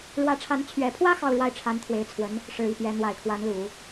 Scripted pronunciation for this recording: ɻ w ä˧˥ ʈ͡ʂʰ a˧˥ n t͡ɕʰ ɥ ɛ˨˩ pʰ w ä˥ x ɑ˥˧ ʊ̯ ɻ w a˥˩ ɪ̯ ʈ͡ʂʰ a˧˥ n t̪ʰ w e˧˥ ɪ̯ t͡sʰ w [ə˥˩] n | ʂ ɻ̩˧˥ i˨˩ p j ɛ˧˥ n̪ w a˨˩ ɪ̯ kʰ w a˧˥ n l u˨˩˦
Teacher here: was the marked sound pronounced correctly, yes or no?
no